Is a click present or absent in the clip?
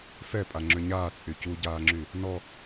present